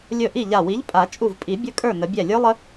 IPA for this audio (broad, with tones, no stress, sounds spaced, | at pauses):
lʲ ɵ˧˩ ʔ i˥˩ ʎ a˧˩ w i˨˥ ʎ pʼ a˨˩˦ t͡ʃʼ u˧˩ v pʼ i˨˩˦ bʲ ɵ˦˥ kʼ ə˞˥˩ n ə˨˩˦ bʲ ɛ˧˩ lʲ ə˞˦˥ lˠ ə˦˥